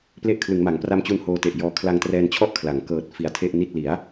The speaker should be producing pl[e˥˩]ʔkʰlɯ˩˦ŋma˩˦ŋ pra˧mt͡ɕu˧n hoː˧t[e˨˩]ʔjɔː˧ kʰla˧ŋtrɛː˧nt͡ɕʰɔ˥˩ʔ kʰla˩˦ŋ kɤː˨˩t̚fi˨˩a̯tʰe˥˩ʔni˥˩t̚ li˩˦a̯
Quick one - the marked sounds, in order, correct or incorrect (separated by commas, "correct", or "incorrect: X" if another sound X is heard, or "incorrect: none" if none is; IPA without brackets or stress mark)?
correct, correct